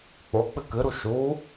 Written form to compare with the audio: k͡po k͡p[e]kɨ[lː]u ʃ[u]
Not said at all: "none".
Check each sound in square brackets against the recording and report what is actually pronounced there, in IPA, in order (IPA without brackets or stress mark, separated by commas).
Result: ɨ, ɾ, u